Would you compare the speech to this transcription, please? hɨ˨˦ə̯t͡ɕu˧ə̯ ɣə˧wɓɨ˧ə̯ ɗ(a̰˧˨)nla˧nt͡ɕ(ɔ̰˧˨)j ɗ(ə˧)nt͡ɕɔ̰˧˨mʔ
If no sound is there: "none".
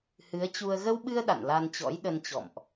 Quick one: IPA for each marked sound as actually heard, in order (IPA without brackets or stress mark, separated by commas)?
a̰˧˨, ɔ̰˧˥, ə˧